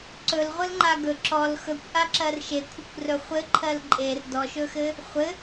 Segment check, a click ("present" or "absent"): present